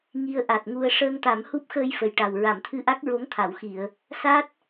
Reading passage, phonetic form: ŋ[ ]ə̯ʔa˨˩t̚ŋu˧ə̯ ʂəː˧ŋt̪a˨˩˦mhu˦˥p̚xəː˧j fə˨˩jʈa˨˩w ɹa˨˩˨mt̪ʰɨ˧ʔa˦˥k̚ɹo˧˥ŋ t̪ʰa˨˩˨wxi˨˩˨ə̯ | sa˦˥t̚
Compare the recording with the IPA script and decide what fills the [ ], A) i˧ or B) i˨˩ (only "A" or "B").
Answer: A